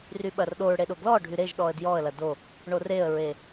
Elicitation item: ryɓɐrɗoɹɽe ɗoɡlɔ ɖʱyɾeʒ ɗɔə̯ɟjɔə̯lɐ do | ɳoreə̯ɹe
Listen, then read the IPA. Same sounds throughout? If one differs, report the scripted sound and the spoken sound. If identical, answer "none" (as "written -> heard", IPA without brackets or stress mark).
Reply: ɟ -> d